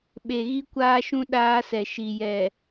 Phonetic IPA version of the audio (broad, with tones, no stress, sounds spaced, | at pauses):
ɓ e˨ ɣ i˦ kʷ aː˦ ʃ ũ˦ ɗ aː˦ s ɛ˨ ʃ i˨ j ɛ˨